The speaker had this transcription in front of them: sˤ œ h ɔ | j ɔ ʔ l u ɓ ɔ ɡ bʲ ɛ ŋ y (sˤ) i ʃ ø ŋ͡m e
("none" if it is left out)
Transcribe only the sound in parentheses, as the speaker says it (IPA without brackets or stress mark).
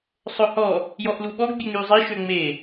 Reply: zˤ